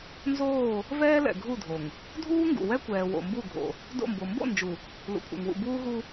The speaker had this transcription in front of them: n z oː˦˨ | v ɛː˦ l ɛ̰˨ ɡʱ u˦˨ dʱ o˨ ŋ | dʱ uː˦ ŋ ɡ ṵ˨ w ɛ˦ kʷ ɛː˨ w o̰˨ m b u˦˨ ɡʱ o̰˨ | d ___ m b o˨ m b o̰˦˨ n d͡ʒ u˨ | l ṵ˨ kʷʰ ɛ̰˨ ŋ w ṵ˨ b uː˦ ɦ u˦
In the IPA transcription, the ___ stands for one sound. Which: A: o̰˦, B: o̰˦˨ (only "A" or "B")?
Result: B